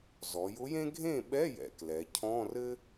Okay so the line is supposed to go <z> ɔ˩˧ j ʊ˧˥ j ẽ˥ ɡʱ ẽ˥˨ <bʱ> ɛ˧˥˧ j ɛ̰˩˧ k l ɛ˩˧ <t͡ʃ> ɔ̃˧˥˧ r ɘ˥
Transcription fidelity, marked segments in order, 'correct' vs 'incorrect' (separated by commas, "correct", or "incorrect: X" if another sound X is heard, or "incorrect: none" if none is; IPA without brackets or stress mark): correct, incorrect: ɓ, incorrect: cʰ